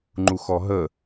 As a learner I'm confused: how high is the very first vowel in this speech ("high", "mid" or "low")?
high